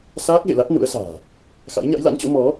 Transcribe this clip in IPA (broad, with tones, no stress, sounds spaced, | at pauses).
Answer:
s aː˦˥ k̚ ɣ ḛ˧˨ l a˦˥ t̚ n ṵ˧˥ ə̯ s a̤ː˨˩ | x a̰˧˥ j ɲ a̰˧˥ j l a̰˧˥ n t͡ɕ o̰˧˥ m ɔ˨˦